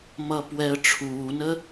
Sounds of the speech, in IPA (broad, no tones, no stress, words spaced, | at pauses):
mʌːpwɛə̯ʈ͡ʂʰuːnə